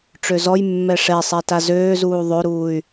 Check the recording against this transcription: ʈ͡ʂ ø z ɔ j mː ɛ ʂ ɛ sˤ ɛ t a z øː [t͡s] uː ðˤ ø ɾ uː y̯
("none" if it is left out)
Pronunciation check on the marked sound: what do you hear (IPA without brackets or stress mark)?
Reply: z